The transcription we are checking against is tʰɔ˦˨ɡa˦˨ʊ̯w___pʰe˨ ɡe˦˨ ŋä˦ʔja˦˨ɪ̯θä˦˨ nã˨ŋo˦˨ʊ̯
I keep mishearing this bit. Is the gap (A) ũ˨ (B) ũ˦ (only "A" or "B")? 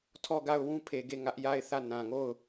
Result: B